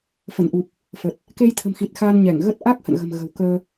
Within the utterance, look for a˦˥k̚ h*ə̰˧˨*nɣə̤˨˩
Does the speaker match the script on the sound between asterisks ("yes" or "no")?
yes